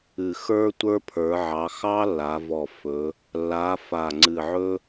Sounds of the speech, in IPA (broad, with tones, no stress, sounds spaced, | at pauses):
ɨ˨˩ x ə˞˥ tʷ ə˞˥ pʰ ə˞˩˧ ʕ ɑ˩˧ x ɑ˥ lː a˩˧ v ɔ˨˩ f ɵ˩˧ | lː a˩˧ f a˨˩ ŋ͡ǀ ɨ˨˩ ʕ ɵ˥